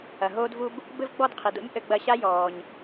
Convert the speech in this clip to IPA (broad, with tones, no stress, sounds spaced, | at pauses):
ɐ˩ ɦ oː˥ d v u˥ b | b ɘ˥ v ɡ͡b ɔ˥ d qʰ i˩ d o̰˥ ɲ ʔ ɘ˧ ɡ͡b ɐ˧ ɕ a˥ j ɔː˩ ɲ